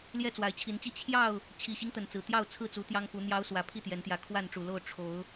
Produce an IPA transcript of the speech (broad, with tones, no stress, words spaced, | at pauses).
ljɛ˥˨t͡swa˨˦ɪ̯t͡ɕʰi˨˦nt͡ɕi˦ t͡ɕʰjɑ˥˨ʊ̯ | t͡ɕʰi˨˩ɕi˦ŋ t̪ə˨˦nt͡sɹ̩˨˩ t̪jɑ˥˨ʊ̯t͡sʰɹ̩˥˨t͡su˨˦ t̪jɑ˦ŋfu˨˦n̪jɑ˦ʊ̯swä˨˦ pʰi˥˨t̪jɛ˨˦nt̪jä˨˦ kʰwa˥˨nʈ͡ʂu˨˩lo˥˨ʊ̯ ʈ͡ʂʰo˨˦ʊ̯